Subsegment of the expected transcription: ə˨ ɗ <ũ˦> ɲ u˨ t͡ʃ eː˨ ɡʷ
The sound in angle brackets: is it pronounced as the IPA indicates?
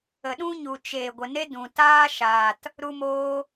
yes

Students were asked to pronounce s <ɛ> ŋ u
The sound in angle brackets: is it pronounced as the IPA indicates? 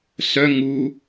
no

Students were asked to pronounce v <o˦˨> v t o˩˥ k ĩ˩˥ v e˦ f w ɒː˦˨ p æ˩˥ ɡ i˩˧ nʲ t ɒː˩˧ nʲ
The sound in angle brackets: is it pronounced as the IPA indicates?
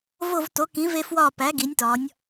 yes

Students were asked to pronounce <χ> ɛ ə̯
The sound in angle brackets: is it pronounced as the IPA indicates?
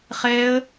yes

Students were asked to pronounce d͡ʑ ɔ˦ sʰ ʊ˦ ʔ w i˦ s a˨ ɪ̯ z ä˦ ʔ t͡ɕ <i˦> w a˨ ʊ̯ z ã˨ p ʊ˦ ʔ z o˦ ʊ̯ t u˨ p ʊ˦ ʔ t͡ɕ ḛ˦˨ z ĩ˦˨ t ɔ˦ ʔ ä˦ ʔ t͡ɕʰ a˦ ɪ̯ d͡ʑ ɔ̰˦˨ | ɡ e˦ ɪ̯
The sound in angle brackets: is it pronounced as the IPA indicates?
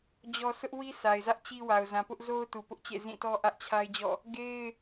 yes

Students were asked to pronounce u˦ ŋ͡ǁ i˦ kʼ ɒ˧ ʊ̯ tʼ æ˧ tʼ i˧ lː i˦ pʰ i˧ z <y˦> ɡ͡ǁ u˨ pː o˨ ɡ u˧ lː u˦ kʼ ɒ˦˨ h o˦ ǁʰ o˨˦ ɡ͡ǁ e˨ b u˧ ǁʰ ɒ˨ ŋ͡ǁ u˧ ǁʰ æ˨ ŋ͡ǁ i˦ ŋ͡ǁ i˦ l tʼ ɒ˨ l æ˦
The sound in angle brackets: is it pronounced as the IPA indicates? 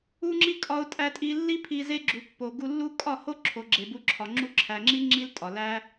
no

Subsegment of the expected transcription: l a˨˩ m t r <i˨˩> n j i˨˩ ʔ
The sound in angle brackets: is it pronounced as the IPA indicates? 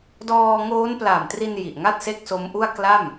no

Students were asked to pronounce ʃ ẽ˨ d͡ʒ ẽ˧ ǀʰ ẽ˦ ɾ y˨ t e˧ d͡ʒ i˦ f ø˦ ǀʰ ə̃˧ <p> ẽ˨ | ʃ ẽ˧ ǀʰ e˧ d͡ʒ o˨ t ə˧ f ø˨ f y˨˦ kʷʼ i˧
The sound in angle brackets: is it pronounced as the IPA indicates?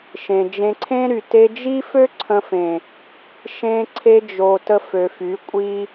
no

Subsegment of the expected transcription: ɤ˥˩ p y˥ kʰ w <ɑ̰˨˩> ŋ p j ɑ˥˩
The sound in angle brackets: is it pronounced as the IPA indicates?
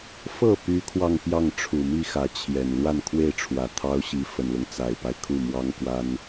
no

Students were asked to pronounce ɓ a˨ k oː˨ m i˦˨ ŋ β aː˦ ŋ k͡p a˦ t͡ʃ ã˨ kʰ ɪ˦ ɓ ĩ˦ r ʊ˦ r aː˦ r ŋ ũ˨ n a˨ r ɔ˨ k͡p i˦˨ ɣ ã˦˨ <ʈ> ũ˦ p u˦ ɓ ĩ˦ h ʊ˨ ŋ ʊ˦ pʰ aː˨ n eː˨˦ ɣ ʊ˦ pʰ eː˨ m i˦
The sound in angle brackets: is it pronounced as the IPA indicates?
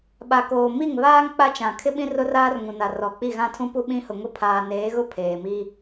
no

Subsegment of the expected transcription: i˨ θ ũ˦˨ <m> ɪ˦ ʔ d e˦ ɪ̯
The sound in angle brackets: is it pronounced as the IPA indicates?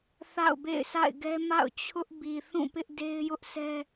no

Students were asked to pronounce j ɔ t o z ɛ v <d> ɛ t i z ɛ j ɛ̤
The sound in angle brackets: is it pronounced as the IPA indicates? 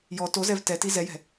no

